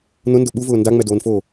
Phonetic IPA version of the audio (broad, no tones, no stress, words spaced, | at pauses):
nʊndʊ ɓuvʊː ndaŋ͡mɛdoːnfoː